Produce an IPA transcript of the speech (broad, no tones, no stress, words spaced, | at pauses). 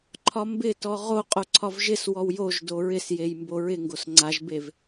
ǃʰɒmbɪtɔ ʁo qʼoǀʰɒvʒɪswɔw joʒ doɹɪsjej mboɹɪŋɡos ŋ͡ǀaʒbev